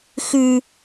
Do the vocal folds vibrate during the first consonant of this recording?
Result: no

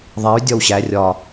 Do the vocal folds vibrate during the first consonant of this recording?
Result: yes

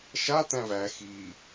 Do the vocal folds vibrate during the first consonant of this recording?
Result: no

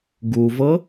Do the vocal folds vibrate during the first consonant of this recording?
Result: yes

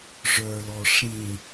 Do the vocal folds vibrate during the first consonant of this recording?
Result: yes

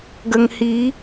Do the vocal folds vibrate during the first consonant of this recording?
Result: yes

